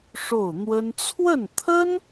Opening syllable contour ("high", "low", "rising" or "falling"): falling